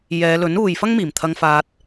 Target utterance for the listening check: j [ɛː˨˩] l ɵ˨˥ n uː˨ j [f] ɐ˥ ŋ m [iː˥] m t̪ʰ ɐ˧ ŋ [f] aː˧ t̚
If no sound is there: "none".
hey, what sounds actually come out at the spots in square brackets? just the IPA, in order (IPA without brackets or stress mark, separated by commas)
ɛː˨˧, f, iː˨˩, f